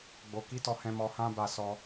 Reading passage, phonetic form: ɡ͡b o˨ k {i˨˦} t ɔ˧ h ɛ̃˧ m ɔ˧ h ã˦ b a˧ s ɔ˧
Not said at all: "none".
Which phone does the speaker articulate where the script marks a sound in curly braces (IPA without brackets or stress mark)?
i˨˦